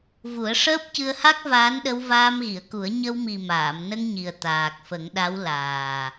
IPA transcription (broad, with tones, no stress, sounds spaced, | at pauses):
v u˨˩˦ ə̯ ʂ əː˦˥ p̚ c ɨ˧ ə̯ h a˦˥ k̚ v aː˧˥ n ɗ ə˧ w v aː˧ m ɣ i˨˩˨ ə̯ k u˨˩˦ ə̯ ɲ ə˧ w m i˨˩ m aː˨˩˨ m n ə˧ ŋ ɲ i˨˩ ə̯ t̪ aː˨˩ k̚ f ə˨˩˦ ŋ ɗ a˧˥ w l aː˨˩